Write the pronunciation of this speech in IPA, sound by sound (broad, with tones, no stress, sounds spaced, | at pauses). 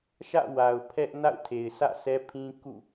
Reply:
ʃ ä̰˦˨ w a˨ ʊ̯ pʰ ɛ˦ ʔ n a̰˦˨ ʊ̯ tʰ e˨ ɪ̯ s ä̰˦˨ s ɛ˦ pʰ ĩ˦ k ṵ˦˨